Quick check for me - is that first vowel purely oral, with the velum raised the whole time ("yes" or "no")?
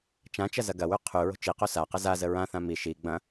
no